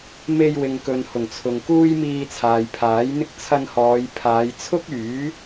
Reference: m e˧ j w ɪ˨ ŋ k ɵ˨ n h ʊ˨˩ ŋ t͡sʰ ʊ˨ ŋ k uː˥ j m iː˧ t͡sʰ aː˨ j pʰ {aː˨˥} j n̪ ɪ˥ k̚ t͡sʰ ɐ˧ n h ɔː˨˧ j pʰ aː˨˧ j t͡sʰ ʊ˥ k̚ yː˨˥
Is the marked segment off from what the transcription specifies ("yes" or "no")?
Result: no